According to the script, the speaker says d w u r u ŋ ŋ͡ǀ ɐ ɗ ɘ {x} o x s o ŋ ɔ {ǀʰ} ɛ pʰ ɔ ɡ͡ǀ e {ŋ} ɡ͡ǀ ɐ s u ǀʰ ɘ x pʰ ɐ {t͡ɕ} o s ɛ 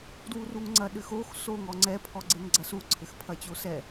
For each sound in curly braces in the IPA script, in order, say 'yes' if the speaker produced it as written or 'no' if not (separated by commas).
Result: yes, no, yes, yes